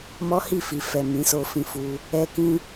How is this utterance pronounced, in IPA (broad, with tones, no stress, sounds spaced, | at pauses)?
m ɔ˦ h i˦˨ f i˨ f ɛ˨ m ĩ˨˦ s o˧ f ĩ˧ f u˧ | ɛ˦ k ĩ˦